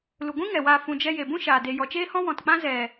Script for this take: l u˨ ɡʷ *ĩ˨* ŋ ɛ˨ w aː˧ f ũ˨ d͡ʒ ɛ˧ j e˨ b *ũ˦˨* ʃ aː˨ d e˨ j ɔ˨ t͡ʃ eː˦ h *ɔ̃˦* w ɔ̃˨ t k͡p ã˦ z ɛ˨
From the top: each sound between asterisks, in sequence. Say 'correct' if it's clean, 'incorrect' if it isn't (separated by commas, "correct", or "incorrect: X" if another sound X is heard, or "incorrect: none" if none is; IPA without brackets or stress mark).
incorrect: ĩ˦, incorrect: ũ˦, correct